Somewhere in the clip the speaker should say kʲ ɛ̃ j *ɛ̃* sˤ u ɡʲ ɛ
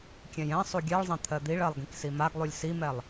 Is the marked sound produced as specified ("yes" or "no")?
yes